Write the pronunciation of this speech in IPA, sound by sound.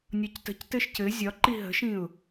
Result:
nʲ ɒ c t ə̤ c t ɘ ʃ c ɘ zʲ ɒ ǃ i ɦ ə̤ ʃ ĩ ʊ̯

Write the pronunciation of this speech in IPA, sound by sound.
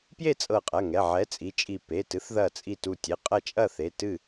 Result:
p j e˥˨ t͡sʼ ɤ˧˩ qʼ ɐ˩˧˩ ŋ ɛ˩˧˩ ʕ ɛ˨˥ t͡sʼ i˩˧˩ t͡ʃʼ i˧˩ p e˩˧˩ t ɨ˨˥ θ ð ɐ˧˩ t͡sʼ i˧˩ t u˧˩ tʲ e˩˧˩ qʼ ɐ˥˨ t͡ʃʼ ɐ˥˨ θ e˩˧˩ t ɨ˥˨

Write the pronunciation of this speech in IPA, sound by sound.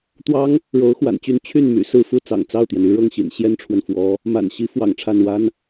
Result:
t̪ w ɑ˥ ŋ | ɻ o˧˥ ʊ̯ x w a̰˨˩ n t͡ɕ y˥˧ n t͡ɕʰ y˥˩ n m y̰˨˩ s ɹ̩˥˧ f u˥˩ t͡s ɑ̰˨˩ ŋ t͡s ɑ˥˩ ʊ̯ t̪ j ɛ˩ n y˥ ɻ ɤ˥˩ ŋ ɕ ḭ˨˩ n ɕ j ɛ˥ n ʈ͡ʂʰ w ə˨ n f w ɔ˧˥ | m a̰˨˩ n ɕ i˧˥ f w ɑ̰˨˩ ŋ ʈ͡ʂʰ a˥˩ n w a˥ n

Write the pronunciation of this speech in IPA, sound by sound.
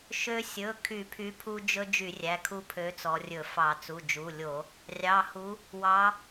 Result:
ʃ ø˦ sʲ ɵ˩˧˩ kʰ y˧˩˧ pʰ y˨˥ pʰ u˦ d͡ʒ ɵ˦ d͡ʒ y˧˩˧ rʲ æ˩˧˩ kʰ u˦ pʰ ø˨˥ t͡s ɔ˩˧ rʲ ɵ˧˩˧ f ɑ˧˩˧ t͡s u˩˧˩ d͡ʒ u˩˧˩ lʲ o˧˩˧ | rʲ ɑ˩˧˩ h u˨˥ | w ɑ˩˧

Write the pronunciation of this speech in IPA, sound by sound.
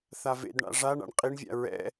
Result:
θ a v ḛ d ɳ a̰ ʐ a ɳ a̰ ɳ qʼ i ɳ vʲ a̰ ɹ ɛ̰

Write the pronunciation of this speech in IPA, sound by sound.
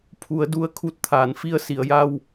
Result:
pʰ u˩˧ ə̯ d u˧ ə̯ kʰ u˧˥ t̚ t̪ʰ aː˩˧ n f i˧ ə̯ s i˩˧ ə̯ j a˧ w

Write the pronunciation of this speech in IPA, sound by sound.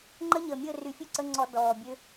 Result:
ŋ͡ǃ ə˦˥ ɲ əː˨˩ mʲ əː˥˨ r y˧˩˧ fʲ ø˥˨ ǀ ə˧˥˧ ŋ͡ǀ ɔ˧˩˧ d ɔː˨˩ bʲ ø˦˥

